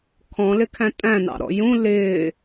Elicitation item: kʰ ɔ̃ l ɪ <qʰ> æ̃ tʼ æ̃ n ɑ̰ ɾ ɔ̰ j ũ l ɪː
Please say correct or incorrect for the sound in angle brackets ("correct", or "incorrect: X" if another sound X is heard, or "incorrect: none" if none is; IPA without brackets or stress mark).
incorrect: kʰ